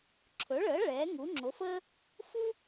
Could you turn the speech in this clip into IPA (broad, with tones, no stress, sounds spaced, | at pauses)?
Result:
ǁʰ ɵ˩˥ ɭ əː˩˥ ɭ ɛː˩˥ ŋ u˩˥ ŋ͡ǁ o˩˥ f əː˥ | f u˥